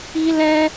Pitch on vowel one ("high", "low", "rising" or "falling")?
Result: high